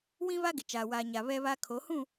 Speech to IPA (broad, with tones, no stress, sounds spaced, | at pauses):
w ĩ˦ β a˦ ɡ ɪ˨ t͡ʃ aː˨ w aː˨ ɲ a˨ β ɛ˦ β a˦ kʰ o˨˦ h ũ˦˨